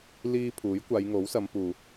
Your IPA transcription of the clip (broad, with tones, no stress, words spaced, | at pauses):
liː˧ pʰuː˨˥jkʷaː˨˧jŋo˨˥wsɐ˨˧m puː˨